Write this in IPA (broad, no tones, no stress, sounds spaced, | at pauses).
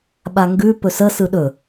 ɓ a ŋ ɡ ʉ p ɵ s ə s ɯ ɗ ɵ